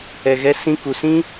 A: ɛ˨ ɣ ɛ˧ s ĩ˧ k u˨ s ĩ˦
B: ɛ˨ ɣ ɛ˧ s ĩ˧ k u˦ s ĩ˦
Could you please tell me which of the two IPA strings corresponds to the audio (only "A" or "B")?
A